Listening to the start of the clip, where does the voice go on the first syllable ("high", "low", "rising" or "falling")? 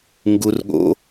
high